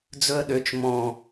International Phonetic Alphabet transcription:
d͡zɵə̯ɗøt͡ʃ mɔ̃

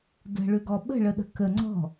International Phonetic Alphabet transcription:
də̤ɭʏɡɔ ɓə̤ɭəɗə̤ kə ŋ͡ǀɔ̤

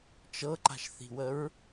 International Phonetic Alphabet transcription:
t͡ʃɤǃa̤ʃθi̤wəɹ

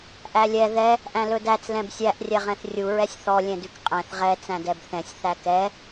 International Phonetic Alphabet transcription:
ʔælʲɛ ðɛ | ʔæ̃lɵdæt͡s lɛ̃bsʲæʔ rʲɛʁɛ̃θrʲu ɹɛsʲθɔ lʲɛ̃dʉkqʼɛ̃θ ʁɛ t͡sæ̃dɛbθɛ̃sʲ θækɛ

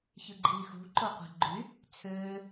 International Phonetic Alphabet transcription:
çɯɡ͡ǃiːxṳ ǃoqʷe̤ɡ͡ǃy | t͡sʰøː

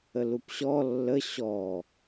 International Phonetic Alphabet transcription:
əlupɕɔ lːə ɕɔ

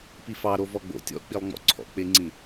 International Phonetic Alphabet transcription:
pifɑ ɾovɔɡ͡bo̰ tʲɔ̰k͡pilˠŋ͡mɔ̰ ǀʰɔ̰k͡pɪŋ͡ǀĩ

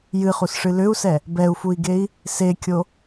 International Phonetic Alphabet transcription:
jɨχusʂɨ lʏu̯sɛ | bɛu̯fui̯ɡei̯ | sekʲo

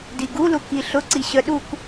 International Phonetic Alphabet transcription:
diɡulu kiɬʊǀi ɕœɗuk

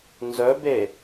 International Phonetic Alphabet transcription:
nzœbe

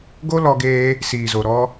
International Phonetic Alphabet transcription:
ɡo˦lɔ˧ɡeː˧ | siː˨zo˨ ɾɔ˧

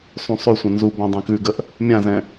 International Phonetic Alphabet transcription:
sˤũsˤʉsʷə̃ nzu bãdˤɛ̃kʉɡəʔ | mʲãzɛ̃

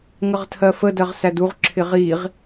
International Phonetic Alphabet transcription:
ŋəʁtʰɜfə dɜʁsæduʁ ǁʰɪʁiʁ

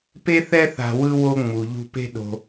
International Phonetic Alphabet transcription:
pe˥θɛ˥ θa̤˧ wɯ˥ wo˥ŋ͡mu˩ ʎṳ˧pe̤˥ ɗo̤˧

